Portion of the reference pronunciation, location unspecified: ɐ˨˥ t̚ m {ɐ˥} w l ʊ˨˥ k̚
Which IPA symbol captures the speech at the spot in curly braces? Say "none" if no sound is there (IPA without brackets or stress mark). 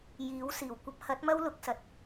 ɐ˥